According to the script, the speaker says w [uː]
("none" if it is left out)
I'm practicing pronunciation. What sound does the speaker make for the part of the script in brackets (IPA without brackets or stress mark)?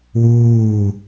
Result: uː